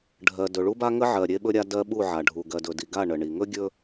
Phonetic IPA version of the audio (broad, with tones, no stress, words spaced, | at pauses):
ɖʱɜ˨ dɵ˨ɭu˦ba˦ ŋə˦ʕɜ˨ ɾʲe˦ɓɵ˦ɾʲa˦ dɜ˦ ɓu˦˨ʕa˨ ɖʱu˨ ɡɜ˨dɵ˨di˨ɡa˦˨ ɳə˨ɳi˨ ŋɵ˦ɡʲɵ˦